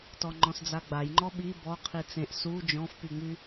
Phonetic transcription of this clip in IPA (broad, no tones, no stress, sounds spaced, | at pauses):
t ɔ ŋ͡ǃ ɔ̃ s d͡z a ɡ͡b a j ŋ͡ǃ ɔ ɓ i b ɔ qʰ i t͡s ẽ ʔ s u d͡ʒ ɔ̃ f p y ŋ͡m y